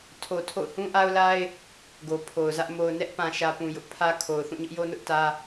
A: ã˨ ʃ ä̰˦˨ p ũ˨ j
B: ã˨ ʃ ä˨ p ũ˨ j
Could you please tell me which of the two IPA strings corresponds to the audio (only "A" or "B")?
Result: B